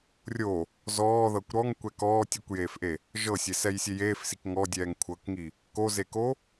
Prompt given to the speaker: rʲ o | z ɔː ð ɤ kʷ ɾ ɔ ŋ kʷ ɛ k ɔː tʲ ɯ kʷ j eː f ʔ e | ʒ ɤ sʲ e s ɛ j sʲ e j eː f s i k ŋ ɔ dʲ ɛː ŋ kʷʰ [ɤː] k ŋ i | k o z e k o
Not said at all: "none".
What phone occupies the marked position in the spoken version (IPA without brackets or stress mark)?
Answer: ɤ